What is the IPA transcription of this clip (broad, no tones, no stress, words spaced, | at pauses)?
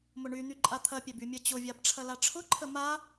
mʊɳyn̪y ǃʼat̪ʰɐpʲɛb ymʲɐt͡ɕʊvʲab ʈ͡ʂʰɐlaʈ͡ʂʰʊǃʰə ma